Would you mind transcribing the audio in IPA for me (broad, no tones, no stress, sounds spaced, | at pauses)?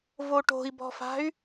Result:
v o ʈ o̤ i̯ b ɔ̤ f a̤ y̯